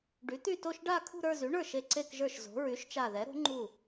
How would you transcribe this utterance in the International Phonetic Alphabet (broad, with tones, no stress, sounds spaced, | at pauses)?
ɖ y˩˥ t̪ y˥˧ t o˥˧ ʃ ɖ a˥˧ kʰ ṳ˥˧ ɾ ə˞˥˧ z y˩˥ ɳ ə˞˥˩ ʃ e˧˩ ǀ e˥˧ k ʒ ə˞˥˩ ʃ z o̤˩˥ ɹ y˩˥ ʃ t͡ʃ a˧˩ ð ɛ˩˥ ɾ o̤˩˥ ŋ͡ǃ u˥˩